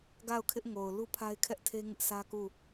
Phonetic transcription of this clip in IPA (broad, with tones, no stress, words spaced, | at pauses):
ɡa˦˨ʊ̯kʰɪ˦ʔ ŋo˨ʊ̯ lu˦pʰa˦ɪ̯kʰɛ˦ʔtʰe˦ ŋɪ˦ʔsʰä˦ku˦˨